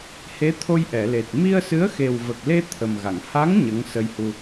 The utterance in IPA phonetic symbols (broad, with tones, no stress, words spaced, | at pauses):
he˧˥t̪ʰo˧j ʔɛ˨˩˨le˨˩t̚ mi˧ə̯sɨ˧˥ə̯xe˨˩w və˨˩k̚le˧ t̪ʰə˨˩mɣa˨˩˨ŋ ha˧˥ŋ ɲə˧˥ŋ sə˧jhu˧